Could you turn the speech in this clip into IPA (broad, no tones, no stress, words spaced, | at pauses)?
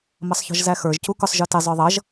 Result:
mʌsˤçɔ̤ʒzæxə˞ʒ cukʊsˤ ʒə˞tɪ zˤə˞ðˤʌʒ